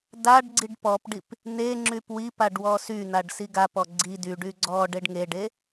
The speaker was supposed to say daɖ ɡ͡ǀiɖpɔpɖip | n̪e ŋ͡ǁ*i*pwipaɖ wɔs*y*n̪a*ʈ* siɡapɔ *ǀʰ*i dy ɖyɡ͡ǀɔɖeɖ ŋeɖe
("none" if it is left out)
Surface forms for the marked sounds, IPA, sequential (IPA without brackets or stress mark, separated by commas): y, y, ɖ, ɡ͡ǀ